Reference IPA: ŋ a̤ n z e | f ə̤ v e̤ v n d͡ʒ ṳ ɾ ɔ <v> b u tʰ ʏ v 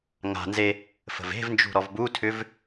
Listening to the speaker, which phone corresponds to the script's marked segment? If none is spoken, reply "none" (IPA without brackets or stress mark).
v